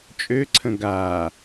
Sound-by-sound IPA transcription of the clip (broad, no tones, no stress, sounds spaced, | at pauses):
t͡ʃʼ ø ǀʰ ə̃ ɡ a